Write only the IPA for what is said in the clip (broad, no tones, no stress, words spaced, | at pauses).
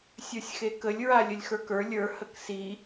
sʲə˞sʲxekəlʲ ɹalʲəlʲxə˞kə˞ lʲə˞ həksi